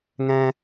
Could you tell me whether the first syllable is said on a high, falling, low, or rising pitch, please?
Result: high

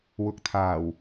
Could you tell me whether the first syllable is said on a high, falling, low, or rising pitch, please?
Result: low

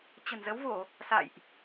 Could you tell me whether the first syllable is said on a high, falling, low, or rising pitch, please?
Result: low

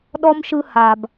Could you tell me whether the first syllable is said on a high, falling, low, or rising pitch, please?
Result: high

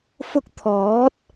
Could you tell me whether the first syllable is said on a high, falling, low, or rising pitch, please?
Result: high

